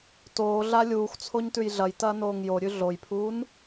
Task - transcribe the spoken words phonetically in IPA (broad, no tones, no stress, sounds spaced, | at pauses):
t oː ɮ a lʲ uː x t͡sʰ o ɲ t ʉ j ɮ ɐ j t ɐː n oː ŋ j o ɾʲ ʉ ɮ o j pʰ uː n